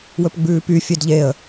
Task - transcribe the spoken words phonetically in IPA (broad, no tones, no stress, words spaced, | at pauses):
wɵpɡ͡bʉːpyfʲed ʎeə̯